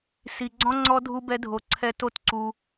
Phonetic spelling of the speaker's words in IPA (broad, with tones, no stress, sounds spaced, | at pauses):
s i˨ ɡ͡ǀ ɔ̃˦ ŋ͡ǀ ɔ˦ dʱ u˦ b ɛ˦ dʱ o˧ ǀʰ ɛ˦ t o˦ t ǀ u˧